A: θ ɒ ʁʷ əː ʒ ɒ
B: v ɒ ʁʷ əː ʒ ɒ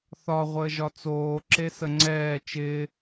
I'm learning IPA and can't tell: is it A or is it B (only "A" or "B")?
A